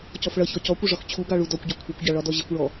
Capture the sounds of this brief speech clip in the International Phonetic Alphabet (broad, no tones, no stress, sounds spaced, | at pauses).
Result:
c ɔ f ɭ ʌ ç ɔ c ɔ kʷ ɪ ʐ ɒ x t͡ɕʰ u ɡ ɑ ɭ u d ɔ kʷ ɟ ɒ kʷʰ ʌ kʷ ɟ ɑ ɭ ɒ d ɔ ʑ ɪ kʷ ɭ ɔ